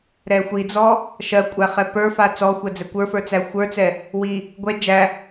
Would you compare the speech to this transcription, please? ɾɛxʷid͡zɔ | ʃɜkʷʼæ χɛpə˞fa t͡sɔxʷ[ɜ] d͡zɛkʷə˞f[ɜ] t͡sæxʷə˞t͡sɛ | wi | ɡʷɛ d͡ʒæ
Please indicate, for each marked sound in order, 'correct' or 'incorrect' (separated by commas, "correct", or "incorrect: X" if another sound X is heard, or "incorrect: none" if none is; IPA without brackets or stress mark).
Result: correct, incorrect: ə˞